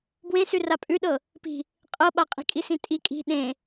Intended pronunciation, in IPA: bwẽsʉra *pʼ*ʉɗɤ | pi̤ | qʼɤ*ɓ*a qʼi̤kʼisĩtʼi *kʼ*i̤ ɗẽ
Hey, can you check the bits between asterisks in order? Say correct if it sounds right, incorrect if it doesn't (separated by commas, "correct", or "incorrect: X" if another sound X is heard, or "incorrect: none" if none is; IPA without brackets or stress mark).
correct, correct, correct